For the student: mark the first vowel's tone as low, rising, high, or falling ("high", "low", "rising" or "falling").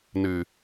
low